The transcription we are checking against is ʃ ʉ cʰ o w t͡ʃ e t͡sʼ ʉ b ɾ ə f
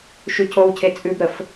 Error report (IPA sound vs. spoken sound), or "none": t͡ʃ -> cʰ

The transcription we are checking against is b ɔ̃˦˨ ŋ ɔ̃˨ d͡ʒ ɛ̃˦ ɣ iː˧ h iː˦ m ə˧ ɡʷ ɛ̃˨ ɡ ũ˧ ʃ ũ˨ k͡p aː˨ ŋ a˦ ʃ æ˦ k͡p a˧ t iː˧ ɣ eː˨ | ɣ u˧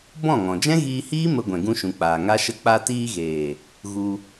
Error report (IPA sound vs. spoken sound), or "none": æ˦ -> ə˦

